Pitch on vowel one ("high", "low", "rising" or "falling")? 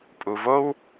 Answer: low